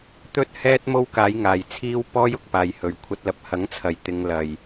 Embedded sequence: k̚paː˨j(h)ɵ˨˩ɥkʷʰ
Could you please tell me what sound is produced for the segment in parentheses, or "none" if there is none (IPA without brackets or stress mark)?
h